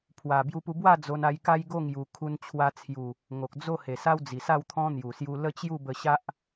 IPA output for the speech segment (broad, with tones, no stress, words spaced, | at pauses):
pʰwa˨˩ bju˧pu˧bwa˥˧ d͡zo˧n a˧jka˦jɡo˥˧ ŋju˨˩kʰu˧nt͡ɕʰwa˧t͡sʰju˨˩ | ŋo˨k̚d͡zo˥˧he˨˩sa˦w d͡zi˨˩sa˥˧wt̪ʰɔ̃˦ n̪ju˨˩ sju˧lə˦t͡ɕju˥˧bə˧ ɕa˦ʔ